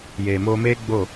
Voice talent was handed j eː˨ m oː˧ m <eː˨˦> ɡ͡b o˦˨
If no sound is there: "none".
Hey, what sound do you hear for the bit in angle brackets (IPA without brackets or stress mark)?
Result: eː˦